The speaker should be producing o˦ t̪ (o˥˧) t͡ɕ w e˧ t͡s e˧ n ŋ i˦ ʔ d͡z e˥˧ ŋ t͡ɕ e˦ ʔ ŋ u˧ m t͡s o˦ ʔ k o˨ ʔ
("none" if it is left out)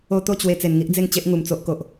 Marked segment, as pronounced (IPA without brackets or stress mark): o˥˧